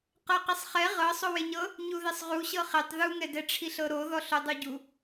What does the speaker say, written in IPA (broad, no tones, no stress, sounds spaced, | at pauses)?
q ɤ q i sˤ χ ɛ ʁ ɤ sˤ o w e ɲ ɤ | ɲ u ð e sˤ ʁ u ɕ ɤ χ e tˤ ð u ŋ ɛ d ɛ ʈ͡ʂʰ i ɬ ɤ ɾ o ð ɔ ɬ o dˤ o ɟ u